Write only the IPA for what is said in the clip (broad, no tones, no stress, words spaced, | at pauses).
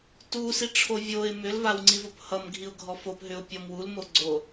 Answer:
tusiʈ͡ʂʰo vʲoɪ̯ mʏlvawŋ͡ǀivop hʌmɡʱiʊ̯ɡʱɔ fopɦʏʊ̯pʲɔm wulmoɡ͡ǀo